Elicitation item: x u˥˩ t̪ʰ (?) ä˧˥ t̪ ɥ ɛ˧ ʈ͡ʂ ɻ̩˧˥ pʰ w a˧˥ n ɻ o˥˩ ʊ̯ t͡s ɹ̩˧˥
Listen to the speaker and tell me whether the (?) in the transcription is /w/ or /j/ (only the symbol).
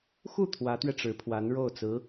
w